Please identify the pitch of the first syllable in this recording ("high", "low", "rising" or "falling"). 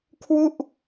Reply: falling